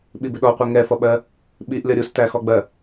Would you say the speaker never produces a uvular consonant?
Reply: no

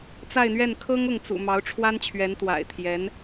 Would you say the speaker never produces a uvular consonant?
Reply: yes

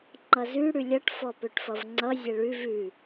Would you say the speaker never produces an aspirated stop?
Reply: yes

